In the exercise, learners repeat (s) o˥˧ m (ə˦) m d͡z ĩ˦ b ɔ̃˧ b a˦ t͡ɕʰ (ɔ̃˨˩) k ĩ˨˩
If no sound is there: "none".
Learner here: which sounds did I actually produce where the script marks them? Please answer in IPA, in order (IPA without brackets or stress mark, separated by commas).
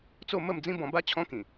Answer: t͡s, ə˥˧, ɔ̃˦